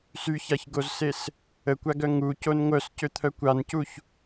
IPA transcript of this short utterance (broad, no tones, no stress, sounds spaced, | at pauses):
s y ç a ç ɡ o z s e s | ə kʷ a ɡ œ ŋ u c o n ŋʷ œ s c ø t̪ʰ œ kʷ a n c u ç